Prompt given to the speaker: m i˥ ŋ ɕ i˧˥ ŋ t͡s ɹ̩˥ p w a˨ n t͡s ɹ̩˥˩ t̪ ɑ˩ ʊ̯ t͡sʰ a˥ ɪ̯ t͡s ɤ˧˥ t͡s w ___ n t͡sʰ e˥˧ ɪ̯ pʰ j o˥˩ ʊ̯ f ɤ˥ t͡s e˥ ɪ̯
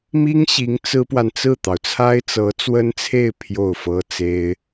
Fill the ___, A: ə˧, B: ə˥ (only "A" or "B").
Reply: B